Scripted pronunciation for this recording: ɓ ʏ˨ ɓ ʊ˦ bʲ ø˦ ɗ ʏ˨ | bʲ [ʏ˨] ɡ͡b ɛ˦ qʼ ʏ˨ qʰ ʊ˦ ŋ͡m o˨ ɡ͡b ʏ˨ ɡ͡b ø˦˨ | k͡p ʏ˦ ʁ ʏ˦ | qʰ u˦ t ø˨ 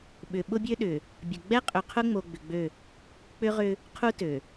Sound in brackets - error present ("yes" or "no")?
yes